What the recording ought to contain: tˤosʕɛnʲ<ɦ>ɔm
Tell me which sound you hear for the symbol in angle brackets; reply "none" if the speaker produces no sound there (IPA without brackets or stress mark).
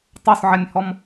h